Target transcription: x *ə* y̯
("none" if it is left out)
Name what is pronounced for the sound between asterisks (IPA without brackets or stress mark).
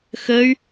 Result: ə